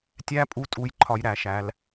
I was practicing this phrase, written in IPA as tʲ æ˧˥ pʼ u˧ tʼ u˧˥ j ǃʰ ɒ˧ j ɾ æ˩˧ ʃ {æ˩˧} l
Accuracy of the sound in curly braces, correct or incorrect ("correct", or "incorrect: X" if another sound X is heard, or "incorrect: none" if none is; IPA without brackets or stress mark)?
correct